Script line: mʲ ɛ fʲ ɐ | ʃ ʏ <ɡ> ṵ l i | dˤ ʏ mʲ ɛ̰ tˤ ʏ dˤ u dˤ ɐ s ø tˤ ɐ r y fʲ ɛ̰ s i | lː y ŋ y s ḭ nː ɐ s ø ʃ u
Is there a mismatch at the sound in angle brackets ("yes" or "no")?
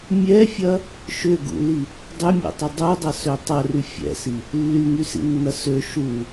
no